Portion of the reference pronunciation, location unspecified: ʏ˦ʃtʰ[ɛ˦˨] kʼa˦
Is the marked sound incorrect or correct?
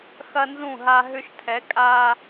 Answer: incorrect